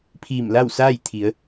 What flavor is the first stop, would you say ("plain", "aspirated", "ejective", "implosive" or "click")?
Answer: aspirated